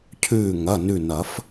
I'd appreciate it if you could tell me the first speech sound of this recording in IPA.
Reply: cʰ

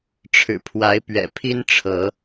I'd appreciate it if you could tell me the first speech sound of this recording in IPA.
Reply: ʈ͡ʂʰ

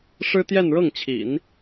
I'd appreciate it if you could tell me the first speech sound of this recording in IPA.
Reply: ʂ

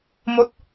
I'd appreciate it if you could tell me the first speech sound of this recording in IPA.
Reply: m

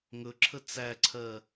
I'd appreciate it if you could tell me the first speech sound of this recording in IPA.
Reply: ŋ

